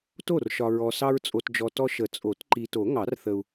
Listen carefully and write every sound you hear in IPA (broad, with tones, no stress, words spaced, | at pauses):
to˥˩rʃɒ˨ɹɔ˨ sɑ˦ɹt͡sʼo˨td͡ʒɔ˨tɔ˦ ʃə˨˩˦ t͡sʼo˨˩˦t ǃi˨to˨˩˦ ŋɑ˨˩˦rθə˨u̯